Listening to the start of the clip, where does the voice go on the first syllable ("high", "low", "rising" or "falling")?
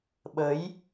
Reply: rising